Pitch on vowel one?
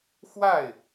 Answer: falling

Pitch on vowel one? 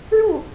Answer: falling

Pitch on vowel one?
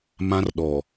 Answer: high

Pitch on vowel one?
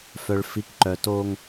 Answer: low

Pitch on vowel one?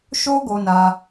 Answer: high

